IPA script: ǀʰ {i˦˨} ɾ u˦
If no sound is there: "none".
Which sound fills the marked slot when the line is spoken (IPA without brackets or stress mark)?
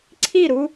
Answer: i˦˨